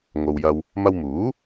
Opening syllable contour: low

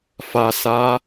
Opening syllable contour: low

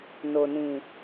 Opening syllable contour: low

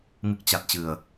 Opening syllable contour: low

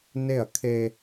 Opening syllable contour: falling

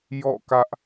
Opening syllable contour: falling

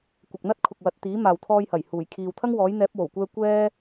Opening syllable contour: low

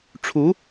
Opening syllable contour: rising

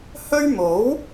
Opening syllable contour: high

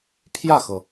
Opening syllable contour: falling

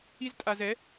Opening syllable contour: high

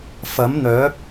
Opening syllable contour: rising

